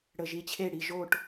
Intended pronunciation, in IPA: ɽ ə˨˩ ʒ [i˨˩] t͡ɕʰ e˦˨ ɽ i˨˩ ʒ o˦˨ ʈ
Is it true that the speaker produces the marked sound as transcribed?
yes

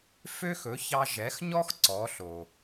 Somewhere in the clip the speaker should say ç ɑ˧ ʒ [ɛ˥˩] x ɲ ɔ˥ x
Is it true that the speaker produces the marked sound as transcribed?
no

